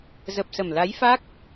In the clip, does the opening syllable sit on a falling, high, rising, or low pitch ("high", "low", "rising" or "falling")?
low